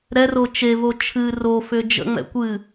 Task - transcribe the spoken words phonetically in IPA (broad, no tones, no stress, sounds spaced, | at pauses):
ɾ ɛ r o t͡ʃ e v o t͡ʃʰ ɨ r o f ʏ d͡ʒ ə̰ ŋ͡m ɛ̰ kʷ ɨ